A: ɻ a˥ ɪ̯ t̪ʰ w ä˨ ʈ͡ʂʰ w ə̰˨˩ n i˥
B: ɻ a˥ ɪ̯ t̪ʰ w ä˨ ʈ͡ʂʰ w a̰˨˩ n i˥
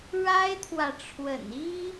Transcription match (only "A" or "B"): A